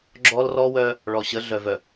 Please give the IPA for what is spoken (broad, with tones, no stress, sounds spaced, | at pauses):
ɡ͡ǁ ɔ˦ l r ɔ˦ w œ˦ | ɭ ɔ˨ ɕ ə˨˦ ɮ œ˨ v œ˨